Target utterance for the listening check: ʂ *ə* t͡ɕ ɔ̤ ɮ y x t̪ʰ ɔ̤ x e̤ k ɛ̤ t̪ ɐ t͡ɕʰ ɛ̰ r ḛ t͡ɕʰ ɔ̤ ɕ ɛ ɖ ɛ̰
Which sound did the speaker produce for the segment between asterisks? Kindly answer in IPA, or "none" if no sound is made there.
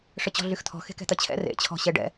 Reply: ə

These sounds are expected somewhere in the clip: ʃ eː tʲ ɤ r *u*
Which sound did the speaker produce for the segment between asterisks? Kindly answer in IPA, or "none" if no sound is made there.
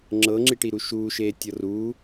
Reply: uː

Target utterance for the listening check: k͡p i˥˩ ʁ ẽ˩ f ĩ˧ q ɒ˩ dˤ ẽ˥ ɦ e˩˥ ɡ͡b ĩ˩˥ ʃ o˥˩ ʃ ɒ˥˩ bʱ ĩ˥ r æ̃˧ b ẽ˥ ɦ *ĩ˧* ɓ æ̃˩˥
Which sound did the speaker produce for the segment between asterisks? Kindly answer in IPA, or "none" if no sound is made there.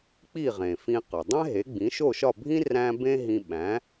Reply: ĩ˧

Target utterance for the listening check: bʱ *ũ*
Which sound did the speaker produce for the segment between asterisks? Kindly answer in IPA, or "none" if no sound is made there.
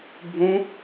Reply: ũ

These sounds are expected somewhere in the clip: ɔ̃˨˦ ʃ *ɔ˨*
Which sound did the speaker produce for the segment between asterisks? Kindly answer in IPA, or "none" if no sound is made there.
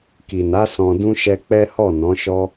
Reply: ɔ˦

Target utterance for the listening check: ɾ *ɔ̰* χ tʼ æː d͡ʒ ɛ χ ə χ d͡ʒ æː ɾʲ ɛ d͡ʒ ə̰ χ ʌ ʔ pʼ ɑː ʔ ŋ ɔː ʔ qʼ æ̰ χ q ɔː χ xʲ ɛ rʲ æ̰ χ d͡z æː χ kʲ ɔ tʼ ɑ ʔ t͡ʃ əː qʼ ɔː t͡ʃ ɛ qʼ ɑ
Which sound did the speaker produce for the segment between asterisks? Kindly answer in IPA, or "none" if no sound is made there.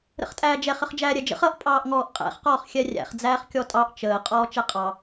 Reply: ə̰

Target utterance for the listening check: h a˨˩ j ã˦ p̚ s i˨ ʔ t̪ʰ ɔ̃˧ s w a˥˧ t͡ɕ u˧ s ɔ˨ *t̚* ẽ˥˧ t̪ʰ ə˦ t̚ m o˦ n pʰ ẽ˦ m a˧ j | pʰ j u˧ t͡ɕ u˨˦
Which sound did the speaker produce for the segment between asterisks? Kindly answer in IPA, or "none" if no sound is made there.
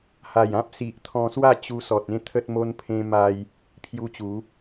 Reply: t̚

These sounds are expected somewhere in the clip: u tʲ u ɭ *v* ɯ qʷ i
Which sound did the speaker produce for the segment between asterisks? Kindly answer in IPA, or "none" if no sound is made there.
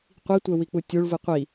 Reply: v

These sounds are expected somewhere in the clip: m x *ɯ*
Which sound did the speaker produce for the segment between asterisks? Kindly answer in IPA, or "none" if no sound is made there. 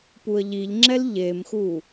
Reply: u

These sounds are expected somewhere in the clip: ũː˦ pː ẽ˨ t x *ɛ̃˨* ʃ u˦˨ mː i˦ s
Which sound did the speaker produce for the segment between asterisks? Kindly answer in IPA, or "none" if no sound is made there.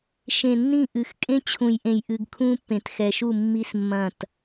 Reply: ɛ˨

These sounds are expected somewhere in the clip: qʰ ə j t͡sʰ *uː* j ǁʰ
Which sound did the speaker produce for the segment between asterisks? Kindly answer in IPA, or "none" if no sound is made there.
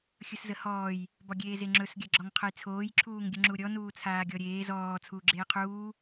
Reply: oː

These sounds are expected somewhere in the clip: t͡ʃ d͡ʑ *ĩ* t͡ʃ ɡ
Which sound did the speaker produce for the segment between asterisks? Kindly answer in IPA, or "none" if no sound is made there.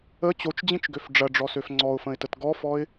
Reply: ĩ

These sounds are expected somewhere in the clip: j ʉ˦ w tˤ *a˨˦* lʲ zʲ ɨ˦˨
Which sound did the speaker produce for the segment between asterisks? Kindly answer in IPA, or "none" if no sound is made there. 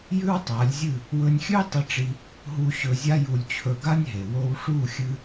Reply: a˨˦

